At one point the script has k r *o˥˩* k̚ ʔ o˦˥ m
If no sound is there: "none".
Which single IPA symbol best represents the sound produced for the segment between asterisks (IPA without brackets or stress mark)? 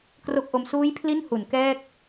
o˥˩